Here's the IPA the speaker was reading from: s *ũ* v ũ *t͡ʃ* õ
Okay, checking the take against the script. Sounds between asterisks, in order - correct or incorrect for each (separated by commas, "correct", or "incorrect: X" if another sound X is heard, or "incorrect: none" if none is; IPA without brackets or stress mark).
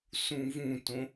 correct, incorrect: t